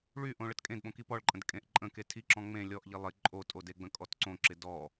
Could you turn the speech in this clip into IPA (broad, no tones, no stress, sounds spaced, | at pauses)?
ɭ y ʔ õ ɭ ə t kʼ ẽ d ɓ õ k i p ɔ ɭ ǃʼ ə̃ d kʼ ẽ ʔ ǃʼ ə̃ k e tʰ i ǁ ɔ̃ ŋ͡m ẽ lʲ ɔ ʔ ʎ i lˠ ɪ ǃʼ o tʼ o d e ɡ͡b ə̃ kʼ ɔ t ǀ õ ǁ ɪ d ɔ